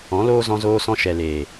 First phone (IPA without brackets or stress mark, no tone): ɔ̃